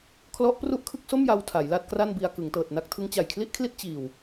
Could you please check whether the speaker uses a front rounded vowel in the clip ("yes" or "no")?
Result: no